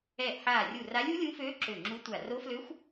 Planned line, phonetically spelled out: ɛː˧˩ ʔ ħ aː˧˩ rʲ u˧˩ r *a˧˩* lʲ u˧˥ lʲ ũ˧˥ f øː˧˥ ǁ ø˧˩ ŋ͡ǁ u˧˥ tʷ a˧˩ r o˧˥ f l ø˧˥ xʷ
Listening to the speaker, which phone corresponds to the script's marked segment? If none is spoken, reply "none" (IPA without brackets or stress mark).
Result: a˧˥